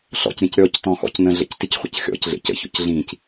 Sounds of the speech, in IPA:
ɬ ɔ̰ c ɾʲ ẽ c ɾʲ ɔ c t ɔ̃ x ɔ̰ c n ə̃ ɮ ə̰ c t i c χʷ ə̰ c xʲ ɔ̰ c ɮ ḛ c ə̰ ç ɔ̰ c ɮ ĩ c

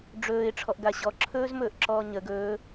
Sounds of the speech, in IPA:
ɖ͡ʐ ɵː ɪ̯ ʈ͡ʂʰ ɔ ʔ ɡ a ɕ ɔ ǁʰ ɵː z m ɵː ʔ ǁ ɔː ɲ ə ɡ ɵː

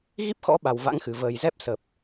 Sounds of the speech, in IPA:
ɣ i˦˥ p̚ x ɔ̰˧˥ ɓ a˨˩ w v a̰˧˥ ŋ x ɨ˨˩ v əː˨˩ j z ɛ˦˥ p̚ s ə˨˩ p̚

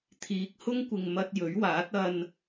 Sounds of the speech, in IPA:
t̪ʰ iː˨˥ k̚ h ʊ˥ ŋ kʷ ɪ˨ ŋ m ɐ˧ t̚ j ɵ˨˥ ɥ w aː˨˥ t̚ ɐ˧ n

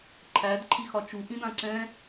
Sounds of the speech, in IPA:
ǃʰ æ d ǃʰ i x ɒ t͡ʃ u ʔ ĩ d ã ǀ ɛ̃

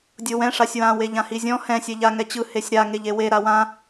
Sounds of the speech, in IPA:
dʲ o w ɛ̃ ʂ a sʲ w ã w e ʎ ã h i zʲ ɔ̃ h ɛ̃ sʲ ɛ ʎ a ŋ ɛ t͡ɕ ɯ h e sʲ ɾ a ŋ e ʎ e w e ɾ a w ã

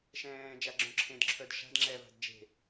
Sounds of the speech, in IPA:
ʃ ɛ̃ː d͡ʒ a ɡ͡ǁ œ̃ ǁʰ ẽ d ǁʰ œ d ʃ a̤ d ŋ͡ǁ ɛ v a̤ d d͡ʒ e̤

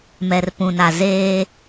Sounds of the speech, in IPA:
m ɛ˨ r p ũ˨ n a˨ z eː˦

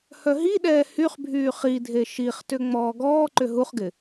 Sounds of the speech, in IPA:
h œ ɦ i ɗ ɛː h y χ bʱ yː χ i dʱ e ʃ i χ t ʏ ŋ͡m ɔː ɡ ɔː ǃ ʏ ɦ u χ ɡ ɪ

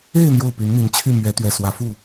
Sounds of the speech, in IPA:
e˥˧ ɪ̯ n̪ j o˥˩ ʊ̯ p y˧˥ n n̪ i˧˥ n t͡ɕʰ y˥˩ m ɥ ɛ˧˥ t̪ ɥ ɛ˨˩ s w ä˧˥ f u˥˩

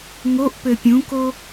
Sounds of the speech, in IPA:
ŋ o ʔ p ø pʲ ũ k o

